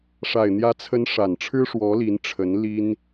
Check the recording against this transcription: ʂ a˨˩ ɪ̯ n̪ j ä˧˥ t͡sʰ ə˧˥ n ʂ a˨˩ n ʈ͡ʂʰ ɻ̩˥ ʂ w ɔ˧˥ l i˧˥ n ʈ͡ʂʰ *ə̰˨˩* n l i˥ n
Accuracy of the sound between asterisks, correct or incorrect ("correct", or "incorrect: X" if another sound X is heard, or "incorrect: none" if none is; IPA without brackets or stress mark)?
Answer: incorrect: ə˧˥